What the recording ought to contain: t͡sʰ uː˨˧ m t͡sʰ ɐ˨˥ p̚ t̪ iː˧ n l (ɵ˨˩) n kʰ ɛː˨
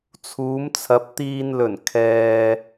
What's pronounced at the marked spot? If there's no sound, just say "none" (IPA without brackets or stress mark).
ɵ˨˩